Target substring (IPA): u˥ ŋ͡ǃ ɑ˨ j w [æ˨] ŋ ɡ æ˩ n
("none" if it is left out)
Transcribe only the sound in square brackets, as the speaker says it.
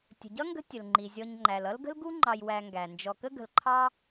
æ˨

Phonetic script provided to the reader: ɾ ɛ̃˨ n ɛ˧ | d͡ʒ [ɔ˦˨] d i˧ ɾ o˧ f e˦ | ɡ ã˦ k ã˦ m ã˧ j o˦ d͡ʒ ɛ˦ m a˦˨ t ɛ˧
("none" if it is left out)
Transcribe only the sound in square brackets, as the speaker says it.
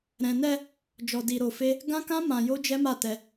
ɔ˧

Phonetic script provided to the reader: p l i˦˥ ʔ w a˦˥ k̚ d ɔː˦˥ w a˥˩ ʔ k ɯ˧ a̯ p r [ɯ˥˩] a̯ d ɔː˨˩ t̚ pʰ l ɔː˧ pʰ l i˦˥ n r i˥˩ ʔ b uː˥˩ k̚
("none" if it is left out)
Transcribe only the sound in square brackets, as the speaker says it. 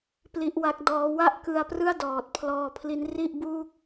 ɯ˥˩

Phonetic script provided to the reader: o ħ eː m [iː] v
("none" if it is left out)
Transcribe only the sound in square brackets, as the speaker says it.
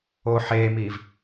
iː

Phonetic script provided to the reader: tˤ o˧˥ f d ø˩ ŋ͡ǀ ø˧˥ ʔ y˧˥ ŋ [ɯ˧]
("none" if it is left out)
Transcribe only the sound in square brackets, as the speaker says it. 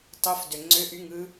ɯ˧˥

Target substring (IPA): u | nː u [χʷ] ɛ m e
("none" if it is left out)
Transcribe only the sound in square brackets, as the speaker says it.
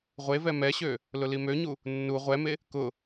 ʁʷ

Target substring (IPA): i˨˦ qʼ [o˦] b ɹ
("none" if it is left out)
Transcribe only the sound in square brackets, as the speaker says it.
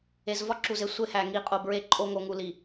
o˨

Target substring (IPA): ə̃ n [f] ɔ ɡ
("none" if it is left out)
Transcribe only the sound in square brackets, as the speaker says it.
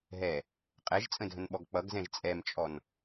ɓ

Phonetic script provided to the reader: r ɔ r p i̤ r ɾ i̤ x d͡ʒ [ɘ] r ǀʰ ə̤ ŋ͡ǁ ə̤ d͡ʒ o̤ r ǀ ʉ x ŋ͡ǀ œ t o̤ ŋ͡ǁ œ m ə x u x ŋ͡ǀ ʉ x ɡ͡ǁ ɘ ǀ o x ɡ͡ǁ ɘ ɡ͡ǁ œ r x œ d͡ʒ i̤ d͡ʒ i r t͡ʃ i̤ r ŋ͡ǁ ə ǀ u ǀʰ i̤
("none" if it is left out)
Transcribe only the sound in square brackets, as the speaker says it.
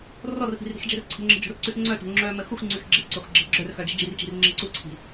ɘ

